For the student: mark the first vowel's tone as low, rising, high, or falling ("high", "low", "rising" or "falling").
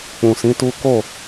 low